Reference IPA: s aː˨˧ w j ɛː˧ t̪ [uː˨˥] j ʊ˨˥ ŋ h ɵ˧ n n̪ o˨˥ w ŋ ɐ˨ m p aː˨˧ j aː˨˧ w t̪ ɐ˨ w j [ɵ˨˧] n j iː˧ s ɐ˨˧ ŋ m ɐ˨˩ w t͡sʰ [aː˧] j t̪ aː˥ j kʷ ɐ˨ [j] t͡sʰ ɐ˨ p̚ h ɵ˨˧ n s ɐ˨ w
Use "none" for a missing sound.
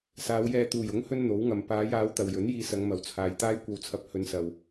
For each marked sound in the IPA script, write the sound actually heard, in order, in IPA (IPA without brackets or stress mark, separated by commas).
uː˨˩, ɵ˨˥, aː˨, w